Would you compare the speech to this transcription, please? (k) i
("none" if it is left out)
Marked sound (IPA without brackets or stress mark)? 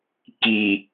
k